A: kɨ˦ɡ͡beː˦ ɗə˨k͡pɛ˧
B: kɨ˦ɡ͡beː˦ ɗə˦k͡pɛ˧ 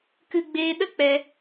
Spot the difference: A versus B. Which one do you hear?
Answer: B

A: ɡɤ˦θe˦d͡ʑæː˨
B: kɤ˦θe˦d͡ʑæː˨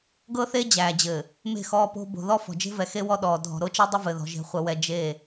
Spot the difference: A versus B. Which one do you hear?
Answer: A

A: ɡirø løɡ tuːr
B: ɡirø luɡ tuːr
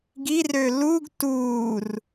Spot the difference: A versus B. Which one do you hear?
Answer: B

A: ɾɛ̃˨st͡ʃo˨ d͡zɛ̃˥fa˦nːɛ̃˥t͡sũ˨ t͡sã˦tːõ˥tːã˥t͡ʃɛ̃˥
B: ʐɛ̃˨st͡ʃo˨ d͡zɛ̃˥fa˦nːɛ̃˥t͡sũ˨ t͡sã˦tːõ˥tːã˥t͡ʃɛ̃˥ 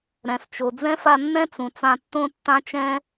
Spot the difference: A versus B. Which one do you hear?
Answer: A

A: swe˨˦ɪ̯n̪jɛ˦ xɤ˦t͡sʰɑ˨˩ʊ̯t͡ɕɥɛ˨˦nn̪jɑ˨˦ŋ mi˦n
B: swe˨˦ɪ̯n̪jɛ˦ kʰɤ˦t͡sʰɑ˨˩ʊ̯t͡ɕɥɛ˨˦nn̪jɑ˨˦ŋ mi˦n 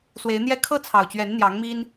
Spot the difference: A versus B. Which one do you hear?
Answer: B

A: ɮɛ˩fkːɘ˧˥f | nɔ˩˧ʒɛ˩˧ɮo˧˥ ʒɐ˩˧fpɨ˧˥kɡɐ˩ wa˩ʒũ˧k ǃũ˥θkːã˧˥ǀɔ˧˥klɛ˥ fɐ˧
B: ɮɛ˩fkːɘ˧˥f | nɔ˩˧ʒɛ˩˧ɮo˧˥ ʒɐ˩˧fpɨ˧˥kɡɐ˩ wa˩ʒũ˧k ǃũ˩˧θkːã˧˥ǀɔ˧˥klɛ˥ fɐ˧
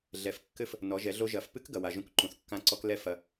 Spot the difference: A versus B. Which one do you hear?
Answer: B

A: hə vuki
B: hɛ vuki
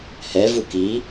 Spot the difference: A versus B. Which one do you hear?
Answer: B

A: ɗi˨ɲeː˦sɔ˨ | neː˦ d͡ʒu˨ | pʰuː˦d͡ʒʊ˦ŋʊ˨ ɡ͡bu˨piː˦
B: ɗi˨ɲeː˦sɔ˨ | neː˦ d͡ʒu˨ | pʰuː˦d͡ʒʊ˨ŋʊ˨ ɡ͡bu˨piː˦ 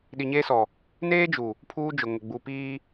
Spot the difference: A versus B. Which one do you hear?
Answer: B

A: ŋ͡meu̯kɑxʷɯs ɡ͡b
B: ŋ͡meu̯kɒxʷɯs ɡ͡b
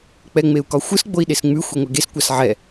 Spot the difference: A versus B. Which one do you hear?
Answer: B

